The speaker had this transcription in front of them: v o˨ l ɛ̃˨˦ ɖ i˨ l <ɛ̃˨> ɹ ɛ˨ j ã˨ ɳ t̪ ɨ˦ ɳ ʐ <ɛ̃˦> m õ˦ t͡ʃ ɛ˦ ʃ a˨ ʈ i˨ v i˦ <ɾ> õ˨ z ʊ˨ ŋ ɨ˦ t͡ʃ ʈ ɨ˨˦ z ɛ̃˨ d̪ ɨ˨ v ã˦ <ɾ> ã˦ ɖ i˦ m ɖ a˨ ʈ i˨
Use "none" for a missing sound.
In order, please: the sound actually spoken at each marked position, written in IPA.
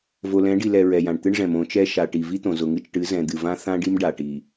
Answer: ɛ˨, ɛ̃˨, t̪, θ

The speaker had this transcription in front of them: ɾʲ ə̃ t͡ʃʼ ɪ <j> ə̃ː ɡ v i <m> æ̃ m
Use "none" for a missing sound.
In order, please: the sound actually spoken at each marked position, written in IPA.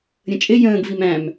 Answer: j, m

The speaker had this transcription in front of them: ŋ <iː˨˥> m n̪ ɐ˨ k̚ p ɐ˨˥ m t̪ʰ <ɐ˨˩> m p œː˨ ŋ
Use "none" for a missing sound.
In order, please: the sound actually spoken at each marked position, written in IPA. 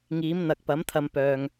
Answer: iː˨˥, ɐ˨˧

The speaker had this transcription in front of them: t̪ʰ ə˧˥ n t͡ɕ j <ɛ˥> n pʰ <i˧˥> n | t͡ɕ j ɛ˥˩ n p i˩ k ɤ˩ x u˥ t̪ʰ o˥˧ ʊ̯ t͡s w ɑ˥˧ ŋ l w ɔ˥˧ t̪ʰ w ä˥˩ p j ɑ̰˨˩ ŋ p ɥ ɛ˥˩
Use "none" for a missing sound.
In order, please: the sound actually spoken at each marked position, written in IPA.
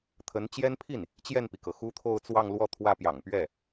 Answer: ɛ˥, i˥˩

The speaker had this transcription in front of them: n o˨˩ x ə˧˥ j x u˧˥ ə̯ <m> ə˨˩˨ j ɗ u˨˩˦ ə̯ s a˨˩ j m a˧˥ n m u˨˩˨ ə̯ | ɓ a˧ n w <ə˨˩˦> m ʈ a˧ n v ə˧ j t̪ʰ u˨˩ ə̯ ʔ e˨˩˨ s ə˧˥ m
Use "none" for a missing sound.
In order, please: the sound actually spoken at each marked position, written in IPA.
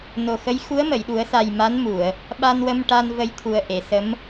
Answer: m, ə˧

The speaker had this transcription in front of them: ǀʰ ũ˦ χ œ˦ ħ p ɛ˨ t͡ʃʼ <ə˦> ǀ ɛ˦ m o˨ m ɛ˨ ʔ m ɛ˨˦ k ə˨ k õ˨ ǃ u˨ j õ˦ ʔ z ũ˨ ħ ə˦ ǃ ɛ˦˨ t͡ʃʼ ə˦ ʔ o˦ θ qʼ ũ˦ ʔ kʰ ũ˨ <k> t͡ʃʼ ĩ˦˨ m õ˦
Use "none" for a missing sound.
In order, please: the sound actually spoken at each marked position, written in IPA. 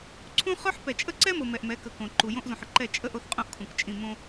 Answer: ə˦, k

